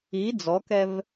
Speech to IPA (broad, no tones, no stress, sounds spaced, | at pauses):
i d͡z ɔ k ɛ v